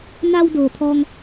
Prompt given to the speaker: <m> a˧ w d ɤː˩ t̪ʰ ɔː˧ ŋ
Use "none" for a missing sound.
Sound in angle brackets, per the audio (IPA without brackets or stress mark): n